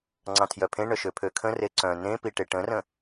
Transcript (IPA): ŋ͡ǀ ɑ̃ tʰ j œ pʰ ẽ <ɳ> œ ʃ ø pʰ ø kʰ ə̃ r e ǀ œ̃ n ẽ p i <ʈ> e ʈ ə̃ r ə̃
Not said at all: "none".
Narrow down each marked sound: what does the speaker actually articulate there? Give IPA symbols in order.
ɳ, ʈ

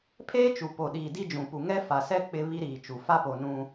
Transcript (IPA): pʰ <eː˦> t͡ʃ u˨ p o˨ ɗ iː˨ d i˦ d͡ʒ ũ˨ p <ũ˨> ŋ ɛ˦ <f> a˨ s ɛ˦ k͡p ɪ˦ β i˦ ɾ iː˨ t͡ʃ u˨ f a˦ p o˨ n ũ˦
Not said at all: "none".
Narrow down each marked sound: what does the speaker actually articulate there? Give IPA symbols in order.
eː˦, u˨, f

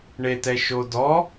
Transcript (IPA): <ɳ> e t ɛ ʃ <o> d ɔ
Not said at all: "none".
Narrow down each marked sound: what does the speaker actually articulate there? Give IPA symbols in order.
ɳ, o

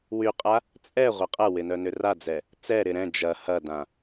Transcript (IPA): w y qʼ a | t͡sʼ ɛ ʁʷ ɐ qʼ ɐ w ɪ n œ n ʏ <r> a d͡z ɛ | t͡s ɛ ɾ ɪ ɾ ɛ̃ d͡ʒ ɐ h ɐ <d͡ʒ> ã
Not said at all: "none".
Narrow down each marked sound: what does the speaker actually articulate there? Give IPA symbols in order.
r, d

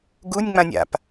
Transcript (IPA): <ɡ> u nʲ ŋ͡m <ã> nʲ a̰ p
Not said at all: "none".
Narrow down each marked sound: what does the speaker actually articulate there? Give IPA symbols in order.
ɡ, ã

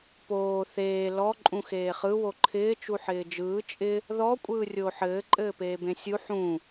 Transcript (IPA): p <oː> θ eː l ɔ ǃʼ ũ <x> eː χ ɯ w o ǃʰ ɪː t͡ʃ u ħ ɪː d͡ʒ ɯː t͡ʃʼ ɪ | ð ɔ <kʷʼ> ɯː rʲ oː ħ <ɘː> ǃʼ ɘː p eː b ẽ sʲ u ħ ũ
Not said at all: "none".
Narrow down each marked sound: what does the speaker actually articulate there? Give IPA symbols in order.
oː, x, kʷʼ, ɘː

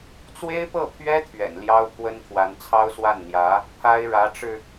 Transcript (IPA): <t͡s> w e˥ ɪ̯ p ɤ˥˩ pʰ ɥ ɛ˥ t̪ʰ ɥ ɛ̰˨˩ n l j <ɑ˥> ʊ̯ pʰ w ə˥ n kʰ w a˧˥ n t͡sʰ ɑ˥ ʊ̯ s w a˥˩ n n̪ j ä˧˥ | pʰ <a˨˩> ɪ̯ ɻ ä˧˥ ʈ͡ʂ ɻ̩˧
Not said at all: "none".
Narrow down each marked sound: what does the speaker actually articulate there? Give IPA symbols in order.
t͡s, ɑ˥, a˥

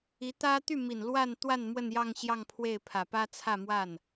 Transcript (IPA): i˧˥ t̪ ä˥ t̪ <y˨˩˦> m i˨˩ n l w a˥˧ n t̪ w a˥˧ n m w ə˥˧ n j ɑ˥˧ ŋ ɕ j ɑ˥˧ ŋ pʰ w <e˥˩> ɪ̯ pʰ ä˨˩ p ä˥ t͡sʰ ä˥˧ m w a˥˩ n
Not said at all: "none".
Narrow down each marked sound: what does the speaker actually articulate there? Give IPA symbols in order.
y˥˩, e˥˩

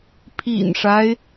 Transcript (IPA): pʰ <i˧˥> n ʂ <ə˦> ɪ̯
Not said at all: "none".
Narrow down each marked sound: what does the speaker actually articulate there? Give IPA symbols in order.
ḭ˨˩, a˦

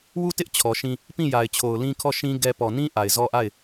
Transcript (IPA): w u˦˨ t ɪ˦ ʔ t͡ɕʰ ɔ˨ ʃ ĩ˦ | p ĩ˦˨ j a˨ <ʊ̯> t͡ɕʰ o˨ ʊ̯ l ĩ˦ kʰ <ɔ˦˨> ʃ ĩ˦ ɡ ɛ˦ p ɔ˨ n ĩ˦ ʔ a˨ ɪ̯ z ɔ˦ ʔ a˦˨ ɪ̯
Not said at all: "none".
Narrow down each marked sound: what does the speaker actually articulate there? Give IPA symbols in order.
ɪ̯, ɔ˦˨

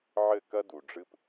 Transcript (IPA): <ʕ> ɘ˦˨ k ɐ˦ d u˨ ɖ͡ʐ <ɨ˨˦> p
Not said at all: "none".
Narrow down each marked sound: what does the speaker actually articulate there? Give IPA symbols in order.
ʕ, ɨ˦

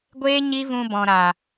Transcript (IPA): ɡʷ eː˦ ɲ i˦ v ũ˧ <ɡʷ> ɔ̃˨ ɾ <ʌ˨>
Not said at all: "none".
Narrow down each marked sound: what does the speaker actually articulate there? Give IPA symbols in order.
b, a˨

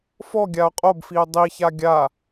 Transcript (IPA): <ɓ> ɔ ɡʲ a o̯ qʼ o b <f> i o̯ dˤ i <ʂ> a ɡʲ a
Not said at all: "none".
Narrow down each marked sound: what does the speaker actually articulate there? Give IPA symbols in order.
f, f, ç

